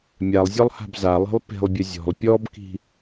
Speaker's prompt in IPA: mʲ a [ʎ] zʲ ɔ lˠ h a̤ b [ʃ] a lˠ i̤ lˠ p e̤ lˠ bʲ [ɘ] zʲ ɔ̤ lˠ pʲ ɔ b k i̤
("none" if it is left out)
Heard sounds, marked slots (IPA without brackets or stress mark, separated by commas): lˠ, z, ɘ